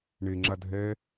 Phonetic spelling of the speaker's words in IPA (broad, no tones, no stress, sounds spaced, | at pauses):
ɳ e ŋ͡ǁ a dʱ ɛ